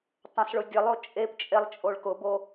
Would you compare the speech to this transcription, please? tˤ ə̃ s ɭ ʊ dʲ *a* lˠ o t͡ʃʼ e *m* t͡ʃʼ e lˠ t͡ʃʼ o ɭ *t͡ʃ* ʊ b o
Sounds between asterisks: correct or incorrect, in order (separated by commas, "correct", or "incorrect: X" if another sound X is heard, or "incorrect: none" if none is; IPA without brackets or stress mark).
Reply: incorrect: ə, incorrect: p, incorrect: k